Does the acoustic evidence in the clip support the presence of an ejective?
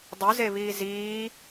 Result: no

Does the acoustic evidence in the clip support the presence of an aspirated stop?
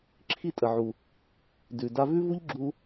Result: yes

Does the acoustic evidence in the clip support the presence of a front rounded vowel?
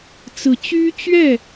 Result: yes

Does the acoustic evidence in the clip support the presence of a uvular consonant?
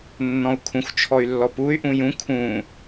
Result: no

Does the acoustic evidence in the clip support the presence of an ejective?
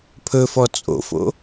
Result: yes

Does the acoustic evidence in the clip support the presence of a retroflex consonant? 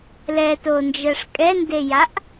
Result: yes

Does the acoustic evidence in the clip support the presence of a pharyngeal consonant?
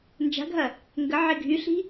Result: yes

